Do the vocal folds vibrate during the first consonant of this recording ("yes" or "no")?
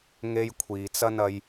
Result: yes